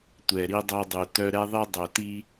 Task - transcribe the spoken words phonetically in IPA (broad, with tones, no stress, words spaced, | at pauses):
tʷɛ˨ɾi˦dˤo˦dˤu˨ tœ˦ ɾɛ˦ðˤi˦ dˤɵ˨ti˦